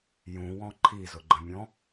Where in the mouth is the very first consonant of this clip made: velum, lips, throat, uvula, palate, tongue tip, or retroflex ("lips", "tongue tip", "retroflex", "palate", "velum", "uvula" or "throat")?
palate